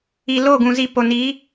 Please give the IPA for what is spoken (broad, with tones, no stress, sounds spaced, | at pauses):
i˨ l o˦˨ ɡ ũ˨ z i˨ p o˨ n i˨˦